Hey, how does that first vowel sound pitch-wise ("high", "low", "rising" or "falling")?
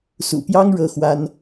low